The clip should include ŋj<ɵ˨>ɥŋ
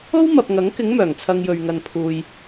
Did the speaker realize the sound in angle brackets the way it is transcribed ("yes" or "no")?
yes